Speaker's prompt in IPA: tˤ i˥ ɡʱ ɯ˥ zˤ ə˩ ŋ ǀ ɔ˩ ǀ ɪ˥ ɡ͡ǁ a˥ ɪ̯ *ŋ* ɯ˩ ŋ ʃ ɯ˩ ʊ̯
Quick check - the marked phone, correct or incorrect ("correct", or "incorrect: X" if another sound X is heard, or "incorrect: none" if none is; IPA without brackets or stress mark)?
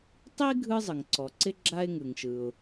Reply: correct